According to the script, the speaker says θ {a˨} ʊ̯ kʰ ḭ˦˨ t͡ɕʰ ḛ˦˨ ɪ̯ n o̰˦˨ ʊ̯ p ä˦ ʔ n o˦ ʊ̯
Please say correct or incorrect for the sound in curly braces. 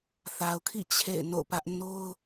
correct